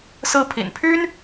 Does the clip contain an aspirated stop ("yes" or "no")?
yes